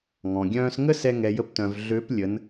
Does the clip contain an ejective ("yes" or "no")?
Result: no